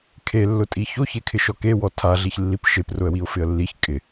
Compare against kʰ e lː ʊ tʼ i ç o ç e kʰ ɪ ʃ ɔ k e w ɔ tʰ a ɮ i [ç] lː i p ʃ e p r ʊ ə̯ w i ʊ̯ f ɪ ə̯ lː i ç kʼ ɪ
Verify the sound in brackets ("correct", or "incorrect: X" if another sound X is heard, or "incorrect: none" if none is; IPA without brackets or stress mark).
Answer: correct